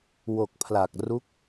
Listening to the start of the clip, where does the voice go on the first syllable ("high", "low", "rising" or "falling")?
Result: low